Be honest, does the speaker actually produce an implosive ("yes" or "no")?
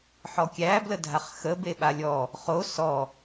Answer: yes